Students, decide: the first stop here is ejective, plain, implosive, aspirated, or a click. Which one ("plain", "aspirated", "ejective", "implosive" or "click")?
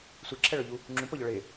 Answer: click